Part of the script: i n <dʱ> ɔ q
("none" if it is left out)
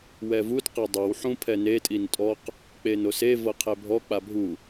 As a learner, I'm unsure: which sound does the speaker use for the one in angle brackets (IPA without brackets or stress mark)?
tʼ